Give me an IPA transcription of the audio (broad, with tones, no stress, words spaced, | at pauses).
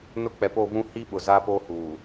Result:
nʊ˦ k͡pɛ˨po˦˨vũ˦ hi˦ɓʊ˨ za˦po˦ huː˨